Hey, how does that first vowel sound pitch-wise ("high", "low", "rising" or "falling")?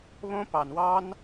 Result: high